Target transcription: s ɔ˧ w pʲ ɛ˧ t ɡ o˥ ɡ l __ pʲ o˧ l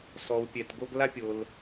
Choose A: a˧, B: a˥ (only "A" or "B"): B